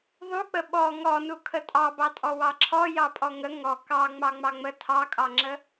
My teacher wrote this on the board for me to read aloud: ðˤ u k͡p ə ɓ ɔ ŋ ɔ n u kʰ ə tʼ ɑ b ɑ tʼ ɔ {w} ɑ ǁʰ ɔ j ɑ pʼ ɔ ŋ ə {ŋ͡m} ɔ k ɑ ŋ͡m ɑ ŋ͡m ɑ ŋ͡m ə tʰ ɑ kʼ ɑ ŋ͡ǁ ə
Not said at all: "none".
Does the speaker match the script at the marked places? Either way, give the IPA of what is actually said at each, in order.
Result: w, ŋ

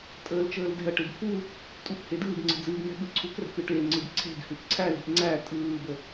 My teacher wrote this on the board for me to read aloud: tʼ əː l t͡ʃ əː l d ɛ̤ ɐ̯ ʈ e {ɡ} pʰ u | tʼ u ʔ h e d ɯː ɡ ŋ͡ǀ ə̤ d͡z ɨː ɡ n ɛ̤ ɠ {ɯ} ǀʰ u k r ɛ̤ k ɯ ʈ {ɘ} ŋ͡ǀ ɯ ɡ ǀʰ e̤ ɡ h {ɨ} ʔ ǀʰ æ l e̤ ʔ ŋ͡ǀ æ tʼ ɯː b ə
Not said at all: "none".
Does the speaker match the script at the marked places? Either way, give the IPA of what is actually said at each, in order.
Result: ɡ, ɯ, e, ɨ

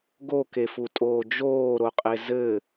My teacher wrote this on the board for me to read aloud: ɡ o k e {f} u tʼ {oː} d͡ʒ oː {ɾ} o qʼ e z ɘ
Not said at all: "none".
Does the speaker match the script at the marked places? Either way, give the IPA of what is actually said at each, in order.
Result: f, oː, ɾ

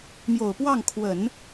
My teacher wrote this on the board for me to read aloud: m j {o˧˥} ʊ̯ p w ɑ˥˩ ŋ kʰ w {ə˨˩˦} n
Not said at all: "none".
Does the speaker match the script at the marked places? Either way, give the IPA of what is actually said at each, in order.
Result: o˨˩, ə˨˩˦

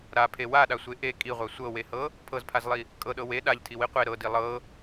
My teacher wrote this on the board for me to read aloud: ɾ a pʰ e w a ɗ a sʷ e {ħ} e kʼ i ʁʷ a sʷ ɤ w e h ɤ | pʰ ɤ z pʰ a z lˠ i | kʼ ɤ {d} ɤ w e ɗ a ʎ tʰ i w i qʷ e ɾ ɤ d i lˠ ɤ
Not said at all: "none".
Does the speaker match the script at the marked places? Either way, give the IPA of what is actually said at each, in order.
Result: ʔ, ɗ

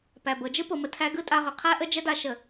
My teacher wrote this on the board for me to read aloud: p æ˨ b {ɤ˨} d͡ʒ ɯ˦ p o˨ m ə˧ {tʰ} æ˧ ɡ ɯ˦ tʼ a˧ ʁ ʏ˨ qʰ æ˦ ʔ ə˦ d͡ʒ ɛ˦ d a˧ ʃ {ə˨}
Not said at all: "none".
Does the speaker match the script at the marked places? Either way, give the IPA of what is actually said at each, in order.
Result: ɤ˨, tʰ, ə˨

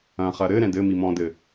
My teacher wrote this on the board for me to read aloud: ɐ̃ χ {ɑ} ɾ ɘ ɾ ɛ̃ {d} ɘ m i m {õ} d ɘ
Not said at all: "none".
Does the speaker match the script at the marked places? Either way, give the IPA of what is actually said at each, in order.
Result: ɐ, d, ɔ̃

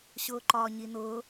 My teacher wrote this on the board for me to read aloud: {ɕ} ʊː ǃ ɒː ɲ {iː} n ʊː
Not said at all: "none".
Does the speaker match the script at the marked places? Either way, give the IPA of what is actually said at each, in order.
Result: ɕ, i

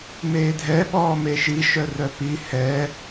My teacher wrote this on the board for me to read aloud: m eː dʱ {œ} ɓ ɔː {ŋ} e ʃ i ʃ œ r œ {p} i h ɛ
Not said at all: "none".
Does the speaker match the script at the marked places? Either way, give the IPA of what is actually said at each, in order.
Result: ɛ, m, p

